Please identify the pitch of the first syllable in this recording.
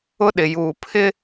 high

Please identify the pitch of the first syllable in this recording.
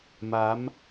rising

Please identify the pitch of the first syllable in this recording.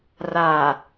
low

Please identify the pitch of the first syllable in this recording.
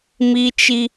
high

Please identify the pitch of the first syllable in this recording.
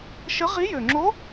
rising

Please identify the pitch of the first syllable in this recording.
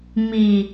low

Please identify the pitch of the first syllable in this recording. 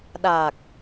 low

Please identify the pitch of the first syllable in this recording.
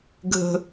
high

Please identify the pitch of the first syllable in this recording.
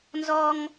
high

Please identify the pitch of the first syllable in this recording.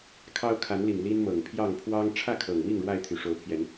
high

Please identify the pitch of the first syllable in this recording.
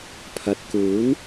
low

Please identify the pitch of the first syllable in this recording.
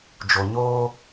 low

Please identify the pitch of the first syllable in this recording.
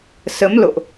rising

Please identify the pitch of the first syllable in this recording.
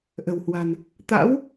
low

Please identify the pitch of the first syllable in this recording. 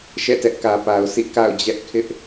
falling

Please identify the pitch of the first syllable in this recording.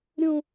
falling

